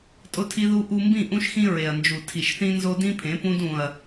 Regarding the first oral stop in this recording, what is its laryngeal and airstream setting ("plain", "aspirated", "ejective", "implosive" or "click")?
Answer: ejective